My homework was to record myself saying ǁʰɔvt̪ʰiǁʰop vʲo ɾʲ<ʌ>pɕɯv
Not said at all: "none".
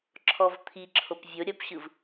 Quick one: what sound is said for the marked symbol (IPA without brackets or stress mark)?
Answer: ʌ